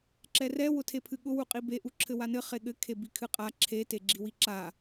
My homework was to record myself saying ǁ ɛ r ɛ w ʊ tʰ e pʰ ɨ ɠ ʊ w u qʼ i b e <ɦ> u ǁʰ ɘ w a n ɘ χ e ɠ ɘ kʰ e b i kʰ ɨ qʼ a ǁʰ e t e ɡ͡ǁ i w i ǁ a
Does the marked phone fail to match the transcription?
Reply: yes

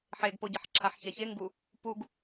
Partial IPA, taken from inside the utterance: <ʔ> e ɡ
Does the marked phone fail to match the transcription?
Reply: yes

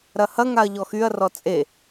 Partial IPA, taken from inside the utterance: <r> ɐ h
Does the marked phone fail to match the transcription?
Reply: yes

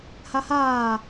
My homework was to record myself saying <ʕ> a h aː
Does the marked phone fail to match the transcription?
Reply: yes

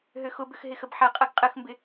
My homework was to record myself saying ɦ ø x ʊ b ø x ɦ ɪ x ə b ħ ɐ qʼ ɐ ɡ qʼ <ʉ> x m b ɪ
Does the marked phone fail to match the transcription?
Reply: yes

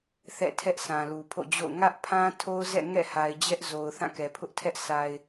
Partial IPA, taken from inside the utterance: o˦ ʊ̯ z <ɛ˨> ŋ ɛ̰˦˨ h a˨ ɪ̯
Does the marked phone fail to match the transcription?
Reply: yes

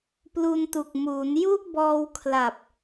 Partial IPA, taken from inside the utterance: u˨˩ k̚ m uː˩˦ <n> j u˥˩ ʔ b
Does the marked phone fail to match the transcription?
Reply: no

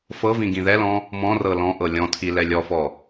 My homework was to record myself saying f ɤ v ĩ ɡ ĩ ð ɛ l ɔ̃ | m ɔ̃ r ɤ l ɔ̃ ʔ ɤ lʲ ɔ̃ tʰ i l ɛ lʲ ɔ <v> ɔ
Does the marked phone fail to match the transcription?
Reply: yes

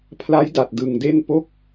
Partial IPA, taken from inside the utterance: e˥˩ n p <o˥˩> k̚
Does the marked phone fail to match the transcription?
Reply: yes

